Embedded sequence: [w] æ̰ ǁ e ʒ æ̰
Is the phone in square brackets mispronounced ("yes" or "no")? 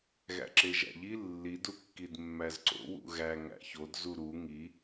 yes